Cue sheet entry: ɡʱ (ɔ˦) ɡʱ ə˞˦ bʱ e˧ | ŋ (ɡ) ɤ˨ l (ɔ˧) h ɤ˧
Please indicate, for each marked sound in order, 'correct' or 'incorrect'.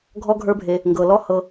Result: correct, correct, incorrect

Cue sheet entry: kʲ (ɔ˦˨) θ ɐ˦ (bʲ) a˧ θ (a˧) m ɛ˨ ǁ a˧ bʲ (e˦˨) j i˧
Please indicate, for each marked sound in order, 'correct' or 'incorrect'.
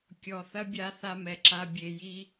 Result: incorrect, correct, correct, incorrect

